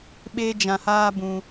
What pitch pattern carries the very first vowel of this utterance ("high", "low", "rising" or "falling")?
high